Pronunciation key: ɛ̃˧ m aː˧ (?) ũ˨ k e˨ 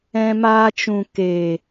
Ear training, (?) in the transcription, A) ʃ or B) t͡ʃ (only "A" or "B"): B